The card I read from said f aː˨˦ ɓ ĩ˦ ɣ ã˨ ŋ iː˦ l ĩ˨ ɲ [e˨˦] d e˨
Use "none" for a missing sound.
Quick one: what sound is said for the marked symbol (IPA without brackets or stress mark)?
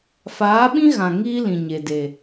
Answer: e˨